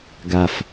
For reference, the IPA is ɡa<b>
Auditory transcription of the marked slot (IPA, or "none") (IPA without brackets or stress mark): f